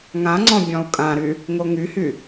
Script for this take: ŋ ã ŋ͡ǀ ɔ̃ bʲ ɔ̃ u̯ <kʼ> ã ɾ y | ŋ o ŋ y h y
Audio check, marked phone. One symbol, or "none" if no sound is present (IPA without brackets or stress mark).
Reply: kʼ